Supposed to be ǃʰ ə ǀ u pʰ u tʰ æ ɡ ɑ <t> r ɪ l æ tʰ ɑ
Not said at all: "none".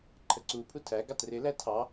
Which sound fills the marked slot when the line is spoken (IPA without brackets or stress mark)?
t